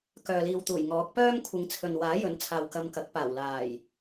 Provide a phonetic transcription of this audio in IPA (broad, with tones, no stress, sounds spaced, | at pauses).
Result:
k œː˨ l iː˨ w t̪ uː˨˩ j ŋ ɔː˨˥ k̚ p œː˥ m kʷʰ ɪ˨˥ ŋ t͡sʰ ɵ˨ n w aː˨˥ j ɵ˨˥ n t͡sʰ aː˨ w k ɐ˧ m k ɐ˨˥ k̚ p aː˨˩ w l aː˨˩ j